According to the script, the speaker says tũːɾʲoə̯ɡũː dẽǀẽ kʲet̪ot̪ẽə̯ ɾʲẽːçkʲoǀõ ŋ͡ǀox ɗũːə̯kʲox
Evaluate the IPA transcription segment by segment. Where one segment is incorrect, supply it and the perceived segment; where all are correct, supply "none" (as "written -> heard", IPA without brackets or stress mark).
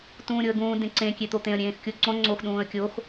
ç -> x